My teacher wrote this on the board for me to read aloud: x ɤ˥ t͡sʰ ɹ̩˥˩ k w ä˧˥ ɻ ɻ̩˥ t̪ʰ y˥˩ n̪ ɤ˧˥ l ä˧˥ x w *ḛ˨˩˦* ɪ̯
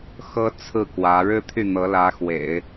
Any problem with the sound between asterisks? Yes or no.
no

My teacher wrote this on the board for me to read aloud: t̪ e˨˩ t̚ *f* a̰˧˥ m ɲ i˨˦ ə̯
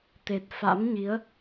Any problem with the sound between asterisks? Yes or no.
no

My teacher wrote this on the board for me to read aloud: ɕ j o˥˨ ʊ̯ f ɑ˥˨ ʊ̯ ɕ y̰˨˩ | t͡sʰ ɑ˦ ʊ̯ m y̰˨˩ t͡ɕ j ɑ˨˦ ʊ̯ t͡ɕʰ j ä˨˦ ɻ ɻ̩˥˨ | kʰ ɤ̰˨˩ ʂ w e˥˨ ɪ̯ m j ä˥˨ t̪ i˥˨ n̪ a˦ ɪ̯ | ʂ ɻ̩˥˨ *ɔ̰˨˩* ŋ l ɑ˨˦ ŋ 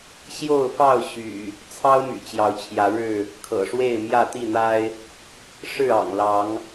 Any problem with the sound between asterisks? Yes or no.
yes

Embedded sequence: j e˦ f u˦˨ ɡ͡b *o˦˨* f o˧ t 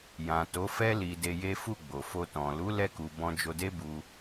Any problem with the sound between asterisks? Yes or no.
yes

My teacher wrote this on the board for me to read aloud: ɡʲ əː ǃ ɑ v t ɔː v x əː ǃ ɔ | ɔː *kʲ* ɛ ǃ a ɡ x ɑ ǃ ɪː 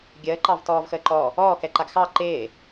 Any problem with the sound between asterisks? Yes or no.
yes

